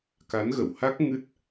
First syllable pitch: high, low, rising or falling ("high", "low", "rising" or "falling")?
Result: rising